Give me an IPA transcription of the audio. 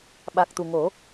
ɓ a˨˩ k̚ t̪ u˨˩ ŋ o˨˩˦

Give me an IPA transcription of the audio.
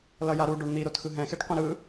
l ʌ j a ɾ u ɖ o ɳ n̪ i ɾ o t x ɯ ɦ ɛ̃ x e ʈ qʷ ɛ̃ ɾ ɯ

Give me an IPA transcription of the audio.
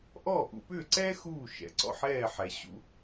ʔ ɔː˥˩ ʔ ṵ˧ p ʏː˥˩ ǀ ɛː˥ x uː˥˩ ʃ ɛ̰˩˥ ǀ ɔ̰˥˩ ħ ɛː˥˩ ħ ɛ˩ ɕ ṵ˧

